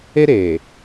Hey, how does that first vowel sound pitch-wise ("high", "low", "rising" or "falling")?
high